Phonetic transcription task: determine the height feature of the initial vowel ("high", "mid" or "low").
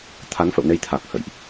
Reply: low